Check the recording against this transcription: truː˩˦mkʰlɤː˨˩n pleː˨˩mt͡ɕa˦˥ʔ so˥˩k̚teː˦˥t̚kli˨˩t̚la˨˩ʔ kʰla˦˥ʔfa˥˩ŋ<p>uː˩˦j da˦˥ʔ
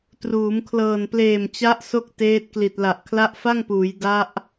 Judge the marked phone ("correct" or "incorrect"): correct